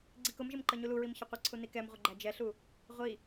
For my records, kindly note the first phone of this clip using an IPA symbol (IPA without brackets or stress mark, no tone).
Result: ɡ͡ǀ